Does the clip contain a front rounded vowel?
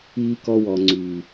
yes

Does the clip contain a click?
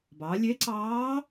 yes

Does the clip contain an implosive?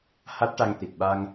yes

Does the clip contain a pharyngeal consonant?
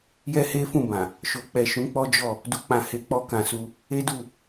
no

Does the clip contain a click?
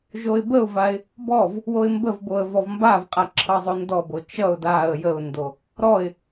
yes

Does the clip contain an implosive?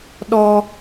yes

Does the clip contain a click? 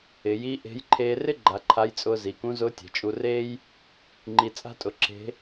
yes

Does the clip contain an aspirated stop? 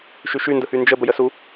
no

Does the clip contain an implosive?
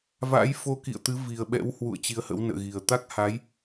yes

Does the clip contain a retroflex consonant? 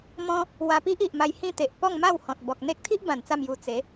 no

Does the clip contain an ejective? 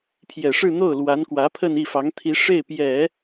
no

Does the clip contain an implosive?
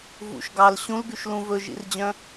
no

